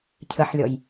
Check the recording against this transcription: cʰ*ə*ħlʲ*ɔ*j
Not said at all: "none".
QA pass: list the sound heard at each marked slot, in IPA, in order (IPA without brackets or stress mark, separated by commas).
ə, ɔ